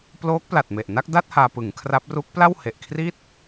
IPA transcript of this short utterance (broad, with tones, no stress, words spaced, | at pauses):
ploː˦˥k̚pla˨˩t̚me˨˩ʔ na˥˩k̚da˥˩t̚ haː˧pɯ˩˦ŋkʰra˦˥p̚ ru˦˥k̚ pla˥˩whe˨˩ʔ kʰri˥˩t̚